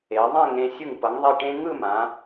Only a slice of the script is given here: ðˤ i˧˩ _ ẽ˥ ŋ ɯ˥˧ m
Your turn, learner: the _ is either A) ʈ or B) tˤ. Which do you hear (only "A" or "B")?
A